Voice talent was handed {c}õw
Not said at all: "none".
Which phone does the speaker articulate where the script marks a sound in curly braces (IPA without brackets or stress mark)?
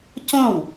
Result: c